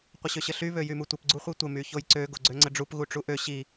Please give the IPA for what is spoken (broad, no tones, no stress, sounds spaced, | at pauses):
qʷ ə ɕ ø ɕ ə ɬ y β ø j y m u tʷ ə p ɡ͡ǀ u χʷ i tʷ ə m y ç o j ǀ ø ɡ o ɡ͡ǀ ø ŋ͡ǀ ə ɖ͡ʐ u p ɣ u ʈ͡ʂ u ʔ ø ɕ i